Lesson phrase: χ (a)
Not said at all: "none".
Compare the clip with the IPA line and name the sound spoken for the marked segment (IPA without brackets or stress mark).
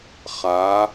a